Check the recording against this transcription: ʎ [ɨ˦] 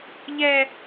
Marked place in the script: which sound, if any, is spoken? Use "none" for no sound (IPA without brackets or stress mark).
ɛ˦